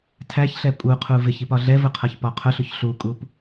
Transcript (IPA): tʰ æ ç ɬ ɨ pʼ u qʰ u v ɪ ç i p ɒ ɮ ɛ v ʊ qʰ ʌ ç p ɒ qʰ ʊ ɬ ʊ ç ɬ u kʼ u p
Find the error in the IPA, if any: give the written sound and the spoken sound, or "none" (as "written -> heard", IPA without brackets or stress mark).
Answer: ɨ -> ɛ